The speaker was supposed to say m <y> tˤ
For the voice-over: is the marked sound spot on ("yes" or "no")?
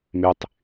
yes